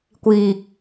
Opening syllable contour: low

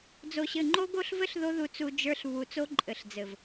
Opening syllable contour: low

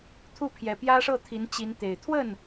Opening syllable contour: falling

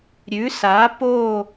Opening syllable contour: rising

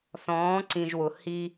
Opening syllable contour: rising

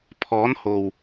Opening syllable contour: rising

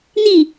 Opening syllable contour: falling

